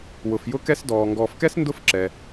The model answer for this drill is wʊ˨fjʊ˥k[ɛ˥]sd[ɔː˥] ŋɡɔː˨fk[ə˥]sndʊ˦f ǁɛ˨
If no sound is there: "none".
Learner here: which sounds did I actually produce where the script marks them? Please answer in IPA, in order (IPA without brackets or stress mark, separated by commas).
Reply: ɛ˥, ɔː˨, ɛ˥